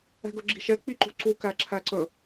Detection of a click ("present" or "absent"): present